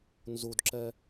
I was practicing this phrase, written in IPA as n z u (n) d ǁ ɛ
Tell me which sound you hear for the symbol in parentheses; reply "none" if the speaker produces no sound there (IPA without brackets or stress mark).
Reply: none